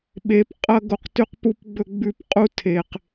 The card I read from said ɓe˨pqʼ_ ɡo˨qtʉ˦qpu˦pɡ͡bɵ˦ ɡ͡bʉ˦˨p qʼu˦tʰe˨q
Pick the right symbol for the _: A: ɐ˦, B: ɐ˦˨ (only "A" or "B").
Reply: A